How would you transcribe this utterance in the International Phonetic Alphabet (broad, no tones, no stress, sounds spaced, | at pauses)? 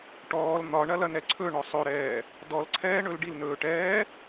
ʈ ɔː l n̪ ɒ ɳ ɐ l ɐ n ɛ ǀʰ ɵ ɳ ɔ sˤ ɵ ɾ ɛː | d ɔ l ǀʰ ɛː ɳ ɵ l ɖ i l n ɵː ʈ ɛː